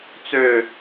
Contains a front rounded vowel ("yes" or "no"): yes